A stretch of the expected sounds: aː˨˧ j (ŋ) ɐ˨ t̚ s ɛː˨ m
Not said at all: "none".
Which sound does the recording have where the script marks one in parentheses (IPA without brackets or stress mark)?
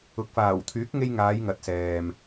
ŋ